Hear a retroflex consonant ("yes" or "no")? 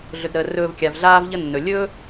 no